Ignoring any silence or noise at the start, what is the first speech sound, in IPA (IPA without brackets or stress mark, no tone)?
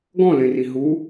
ɡ